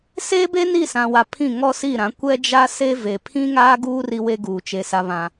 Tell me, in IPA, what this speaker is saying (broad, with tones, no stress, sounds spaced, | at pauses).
s e˦ b e˦ n i˦˨ s ã˨ w a˨ pʰ ĩ˦˨ ŋ ɔ˦ s i˦˨ ɾ ã˨˦ kʷ ɛ˦ d͡ʒ a˦ s e˦ v e˨ pʰ ĩ˦ ŋ aː˦ ɡ uː˦ r i˦ w e˦ ɡ uː˨ t͡ʃ e˨ s a˨ β ã˨